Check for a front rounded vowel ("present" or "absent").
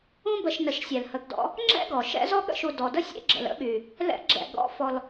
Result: present